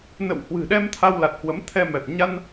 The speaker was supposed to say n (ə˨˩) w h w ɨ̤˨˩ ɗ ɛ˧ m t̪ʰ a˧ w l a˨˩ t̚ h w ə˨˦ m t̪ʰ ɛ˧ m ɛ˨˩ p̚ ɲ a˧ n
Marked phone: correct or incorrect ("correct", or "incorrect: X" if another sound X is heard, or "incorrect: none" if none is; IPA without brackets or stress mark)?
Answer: incorrect: ə̰˧˨